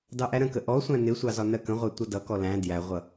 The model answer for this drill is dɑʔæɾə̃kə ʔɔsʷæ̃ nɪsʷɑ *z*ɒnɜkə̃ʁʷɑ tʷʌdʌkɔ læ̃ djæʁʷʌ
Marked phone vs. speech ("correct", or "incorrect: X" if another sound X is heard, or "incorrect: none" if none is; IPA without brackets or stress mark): correct